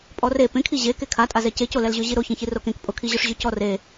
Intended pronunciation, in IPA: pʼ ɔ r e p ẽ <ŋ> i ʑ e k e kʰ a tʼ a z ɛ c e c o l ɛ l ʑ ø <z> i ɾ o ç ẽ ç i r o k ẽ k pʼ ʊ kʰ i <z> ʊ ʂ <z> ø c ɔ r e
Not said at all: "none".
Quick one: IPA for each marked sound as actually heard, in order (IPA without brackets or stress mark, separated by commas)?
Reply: kʰ, ʑ, ʑ, ʑ